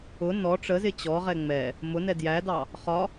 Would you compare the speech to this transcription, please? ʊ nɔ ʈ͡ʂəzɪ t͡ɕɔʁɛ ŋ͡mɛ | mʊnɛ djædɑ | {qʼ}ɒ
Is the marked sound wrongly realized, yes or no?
yes